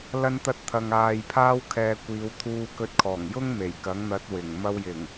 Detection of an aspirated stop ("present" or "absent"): present